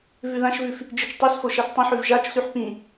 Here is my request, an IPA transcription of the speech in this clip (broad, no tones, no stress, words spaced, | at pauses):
vʉðãʃvʉf | d͡ʒit͡ʃtˤʉsfo ʃastˤĩħʉv ʒat͡ʃsʉħ pĩ